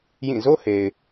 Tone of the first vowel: falling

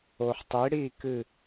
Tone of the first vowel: low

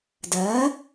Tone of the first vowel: rising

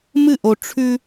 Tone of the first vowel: falling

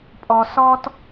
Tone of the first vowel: high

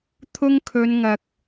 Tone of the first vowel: high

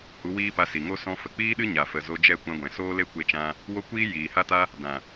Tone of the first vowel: rising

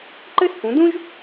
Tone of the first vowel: high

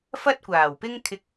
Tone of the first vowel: high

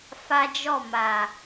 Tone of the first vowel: high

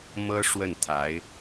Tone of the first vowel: high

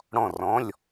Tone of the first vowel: falling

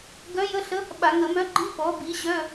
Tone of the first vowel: rising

